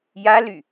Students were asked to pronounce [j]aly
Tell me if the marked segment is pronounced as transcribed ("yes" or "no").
yes